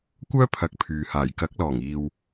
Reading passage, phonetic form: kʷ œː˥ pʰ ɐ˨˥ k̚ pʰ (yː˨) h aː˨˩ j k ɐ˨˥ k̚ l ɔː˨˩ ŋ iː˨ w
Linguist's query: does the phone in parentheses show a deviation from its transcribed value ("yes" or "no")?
no